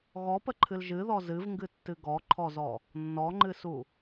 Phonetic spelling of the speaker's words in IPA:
ɣɔpəǃʰɨl ʒɨðɔ zɨvŋɡɨtːɨ ɡɔǃʰɔzɔ | nːɔŋ͡ǃɨsu

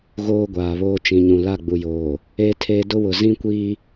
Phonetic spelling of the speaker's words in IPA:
ɣoː˦ɡʷaː˨βoː˦ t͡ʃĩ˨ɲũ˨ la˦˨ɡ͡bu˨joː˨ | eː˦tʰeː˦ dʊ˦wʊ˨ zĩ˦kʷi˦

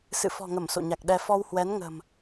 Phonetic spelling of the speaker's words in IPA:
sɨ̰˧˨fɔ̤˨˩ŋə˧˩m so̰˧˨ɲa˨˩k̚ɗɛ˧ fɔ˧whwɛ˨˦n ŋə̤˨˩m

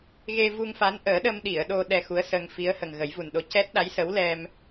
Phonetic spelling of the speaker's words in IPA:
ɣe˧vu˧ŋfa˧˥nʔəː˨˩˦ ɗə˧mɗi˨˩˨ə̯ ɗo˧ ɗɛ˧xu˧˥ə̯sə˧ŋ fi˧˥ə̯hə˨˩ŋ ɣə˨˩˦jvu˨˩nɗo˧˥ cɛ˦˥t̚ɗa˧˥jsə˧˥w lɛ˧m

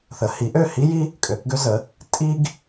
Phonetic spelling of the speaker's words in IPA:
θə˩˥hi˩˥ʔø˥˩ hi˥ji˥ | kʼø˨˩˦kɡø˥zə˩˥ | tʼi˥ɡ

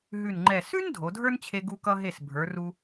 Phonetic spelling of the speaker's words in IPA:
ɦʉ˧˩nŋ͡ǃɛ˧˩ sʉ˥n dʱo˩˧dʱə˞˥nt͡ɕʰe˧ ɡu˧kʌ˧ɦe˧˩s bʱə˞˩˧ru˧

